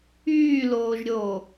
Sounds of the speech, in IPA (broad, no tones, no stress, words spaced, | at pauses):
yːloːʒɾʲoː